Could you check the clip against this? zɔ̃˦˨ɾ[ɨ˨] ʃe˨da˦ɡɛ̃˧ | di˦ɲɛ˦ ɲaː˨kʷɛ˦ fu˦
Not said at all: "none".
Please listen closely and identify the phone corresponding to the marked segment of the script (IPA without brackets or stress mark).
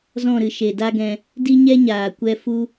ɨ˨